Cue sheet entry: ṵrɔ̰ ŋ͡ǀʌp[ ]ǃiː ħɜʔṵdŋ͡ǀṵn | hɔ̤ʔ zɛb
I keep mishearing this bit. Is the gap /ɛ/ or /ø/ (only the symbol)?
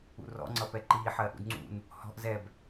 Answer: ɛ